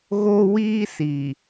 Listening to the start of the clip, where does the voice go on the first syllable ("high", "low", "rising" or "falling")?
high